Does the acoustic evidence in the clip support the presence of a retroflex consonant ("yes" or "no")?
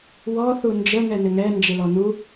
no